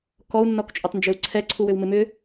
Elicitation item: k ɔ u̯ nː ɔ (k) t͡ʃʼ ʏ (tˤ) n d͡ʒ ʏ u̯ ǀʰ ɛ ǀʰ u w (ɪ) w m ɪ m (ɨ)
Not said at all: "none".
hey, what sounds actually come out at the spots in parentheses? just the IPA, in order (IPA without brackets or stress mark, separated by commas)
k, tˤ, ʏ, ʏ